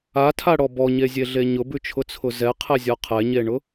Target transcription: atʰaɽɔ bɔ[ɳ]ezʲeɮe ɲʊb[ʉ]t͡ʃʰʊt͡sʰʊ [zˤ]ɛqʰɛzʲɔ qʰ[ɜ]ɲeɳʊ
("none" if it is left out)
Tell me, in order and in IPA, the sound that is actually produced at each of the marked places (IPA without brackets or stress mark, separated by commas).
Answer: ɲ, ʉ, z, ɛ